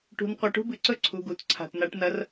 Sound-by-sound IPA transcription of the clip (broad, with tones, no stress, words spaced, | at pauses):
ʈṳ˨˦n qʷɐ˨˦ʈṳ˥bɨ˩˧˩ ǀɵ˥ ǀʰu˩˧˩ɡu˩˧˩t ǀʰa̤˩˧˩tna˨˩˦ʈ nɐ˨˦r